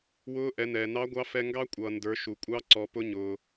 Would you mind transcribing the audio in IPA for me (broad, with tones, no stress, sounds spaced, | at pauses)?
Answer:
w ʊː˧˥ ʔ ɛ˩˧ n ɛː˩ n ɑ˧˥ ɡʷ ɑ˧˥ f ɛ˧ ŋ ɡ ɑ˥ kʷʼ ʌː˩ n d ə˞˩˧ ʃ u˩ kʷʼ ɑ˧˥ ǀ ɔ˩˧ p ʊ˧˥ ɲ ʊː˩